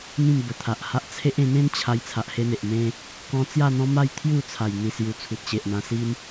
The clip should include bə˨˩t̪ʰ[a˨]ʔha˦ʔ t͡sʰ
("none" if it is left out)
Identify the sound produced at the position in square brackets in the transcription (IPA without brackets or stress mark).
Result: a˨